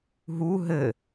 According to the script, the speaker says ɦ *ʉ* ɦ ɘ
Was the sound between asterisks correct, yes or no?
no